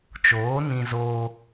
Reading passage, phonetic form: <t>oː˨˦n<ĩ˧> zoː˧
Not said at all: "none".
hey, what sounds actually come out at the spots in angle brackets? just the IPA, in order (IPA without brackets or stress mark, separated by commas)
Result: t͡ʃ, ĩ˧